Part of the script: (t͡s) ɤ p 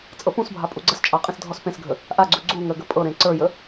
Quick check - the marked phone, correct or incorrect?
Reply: incorrect